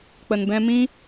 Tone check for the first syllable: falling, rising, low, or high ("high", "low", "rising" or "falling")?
low